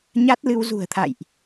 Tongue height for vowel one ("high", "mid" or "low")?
low